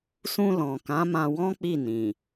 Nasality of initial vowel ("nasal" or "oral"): nasal